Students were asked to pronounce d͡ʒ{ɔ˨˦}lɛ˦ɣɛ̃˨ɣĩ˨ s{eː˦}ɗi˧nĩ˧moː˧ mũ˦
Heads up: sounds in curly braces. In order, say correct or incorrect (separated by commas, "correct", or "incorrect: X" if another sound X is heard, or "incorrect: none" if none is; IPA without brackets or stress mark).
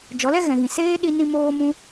correct, correct